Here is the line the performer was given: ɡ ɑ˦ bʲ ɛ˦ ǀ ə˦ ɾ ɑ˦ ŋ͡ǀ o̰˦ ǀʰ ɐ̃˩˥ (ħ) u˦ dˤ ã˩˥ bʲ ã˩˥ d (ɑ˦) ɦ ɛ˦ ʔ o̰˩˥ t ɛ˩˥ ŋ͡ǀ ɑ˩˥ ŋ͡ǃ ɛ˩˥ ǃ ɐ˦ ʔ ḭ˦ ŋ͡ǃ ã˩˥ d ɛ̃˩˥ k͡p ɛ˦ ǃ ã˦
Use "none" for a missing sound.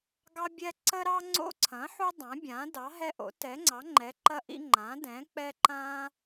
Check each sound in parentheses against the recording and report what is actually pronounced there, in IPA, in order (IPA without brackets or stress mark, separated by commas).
ħ, ɑ˩˥